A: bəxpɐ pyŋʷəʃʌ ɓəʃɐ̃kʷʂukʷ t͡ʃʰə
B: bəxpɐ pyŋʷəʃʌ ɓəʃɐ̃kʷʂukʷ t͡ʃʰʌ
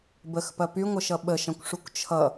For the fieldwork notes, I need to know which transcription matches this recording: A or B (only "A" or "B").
B